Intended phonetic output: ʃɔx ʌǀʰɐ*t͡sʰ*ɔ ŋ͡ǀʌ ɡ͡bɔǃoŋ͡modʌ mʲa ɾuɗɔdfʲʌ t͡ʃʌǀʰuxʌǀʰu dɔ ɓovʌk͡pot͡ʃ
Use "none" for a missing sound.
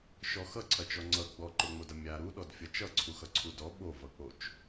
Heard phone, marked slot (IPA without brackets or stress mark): t͡ʃ